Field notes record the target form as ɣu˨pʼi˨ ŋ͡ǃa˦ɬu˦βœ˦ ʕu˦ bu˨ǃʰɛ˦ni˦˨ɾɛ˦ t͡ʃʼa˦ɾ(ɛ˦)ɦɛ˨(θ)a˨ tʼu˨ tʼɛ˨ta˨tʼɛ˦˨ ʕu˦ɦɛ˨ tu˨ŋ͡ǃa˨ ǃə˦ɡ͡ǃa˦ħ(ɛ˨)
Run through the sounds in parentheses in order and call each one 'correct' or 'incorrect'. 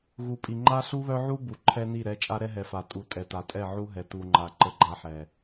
correct, incorrect, correct

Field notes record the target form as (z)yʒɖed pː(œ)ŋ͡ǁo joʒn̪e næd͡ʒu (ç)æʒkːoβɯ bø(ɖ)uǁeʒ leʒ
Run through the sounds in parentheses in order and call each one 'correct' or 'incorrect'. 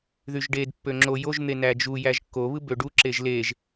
incorrect, incorrect, incorrect, correct

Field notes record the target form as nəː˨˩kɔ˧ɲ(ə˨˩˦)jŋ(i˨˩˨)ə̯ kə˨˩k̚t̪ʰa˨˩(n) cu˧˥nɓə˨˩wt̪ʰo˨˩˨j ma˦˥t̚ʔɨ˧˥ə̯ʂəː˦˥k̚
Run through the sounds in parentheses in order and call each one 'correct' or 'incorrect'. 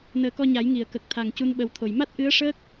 incorrect, correct, incorrect

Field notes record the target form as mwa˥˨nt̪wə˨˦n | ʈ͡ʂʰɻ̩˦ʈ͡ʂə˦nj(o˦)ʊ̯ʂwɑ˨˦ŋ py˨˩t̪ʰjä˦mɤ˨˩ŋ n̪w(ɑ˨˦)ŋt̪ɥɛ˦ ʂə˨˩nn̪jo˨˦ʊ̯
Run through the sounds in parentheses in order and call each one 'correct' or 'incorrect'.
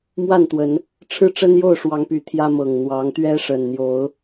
incorrect, correct

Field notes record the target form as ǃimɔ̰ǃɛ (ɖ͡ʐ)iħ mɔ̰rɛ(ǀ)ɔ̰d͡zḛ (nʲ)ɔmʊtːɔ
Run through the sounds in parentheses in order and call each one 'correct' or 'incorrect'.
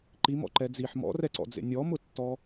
incorrect, correct, correct

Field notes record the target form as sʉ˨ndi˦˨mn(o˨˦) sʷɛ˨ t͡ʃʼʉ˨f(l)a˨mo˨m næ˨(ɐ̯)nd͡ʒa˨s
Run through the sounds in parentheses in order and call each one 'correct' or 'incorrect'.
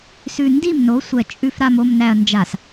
correct, incorrect, correct

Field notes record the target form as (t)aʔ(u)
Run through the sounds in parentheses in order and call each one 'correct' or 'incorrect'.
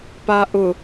incorrect, incorrect

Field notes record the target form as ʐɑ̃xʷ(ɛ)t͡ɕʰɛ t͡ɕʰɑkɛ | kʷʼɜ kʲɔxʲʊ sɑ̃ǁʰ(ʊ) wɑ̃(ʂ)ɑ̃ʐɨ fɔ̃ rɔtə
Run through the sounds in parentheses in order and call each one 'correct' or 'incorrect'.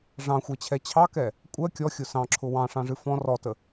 correct, correct, correct

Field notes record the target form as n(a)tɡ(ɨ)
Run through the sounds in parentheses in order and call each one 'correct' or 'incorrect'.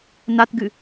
correct, correct

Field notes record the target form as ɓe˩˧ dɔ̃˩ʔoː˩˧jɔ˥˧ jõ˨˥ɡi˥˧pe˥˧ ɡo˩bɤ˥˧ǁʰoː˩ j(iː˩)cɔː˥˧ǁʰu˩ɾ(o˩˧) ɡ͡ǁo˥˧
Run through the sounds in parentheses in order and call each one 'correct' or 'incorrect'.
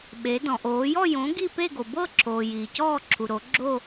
correct, correct

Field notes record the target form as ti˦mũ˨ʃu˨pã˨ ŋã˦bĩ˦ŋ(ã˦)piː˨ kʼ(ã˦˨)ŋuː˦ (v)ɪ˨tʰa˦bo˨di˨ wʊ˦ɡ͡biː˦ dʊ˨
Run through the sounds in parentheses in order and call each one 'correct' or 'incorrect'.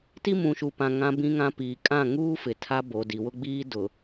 correct, correct, incorrect

